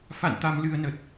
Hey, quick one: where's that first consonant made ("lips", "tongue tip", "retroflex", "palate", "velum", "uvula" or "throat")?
lips